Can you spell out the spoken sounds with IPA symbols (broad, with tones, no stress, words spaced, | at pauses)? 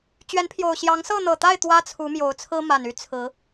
t͡ɕɥɛ˨˦npʰjo˨˩ʊ̯ɕjɑ˨˦ŋ sɤ˥˨n̪ɤ˨˩t̪a˥˨ɪ̯ t̪wä˦t͡sʰu˨˦ mjo˨˦ʊ̯t͡sʰɹ̩˦ma˨˩n y˦ t͡sʰɹ̩˨˦